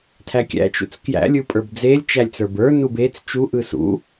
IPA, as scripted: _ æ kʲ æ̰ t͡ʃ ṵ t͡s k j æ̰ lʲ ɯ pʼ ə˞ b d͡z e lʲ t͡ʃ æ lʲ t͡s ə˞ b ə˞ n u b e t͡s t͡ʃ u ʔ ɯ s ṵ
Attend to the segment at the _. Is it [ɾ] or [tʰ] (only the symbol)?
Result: tʰ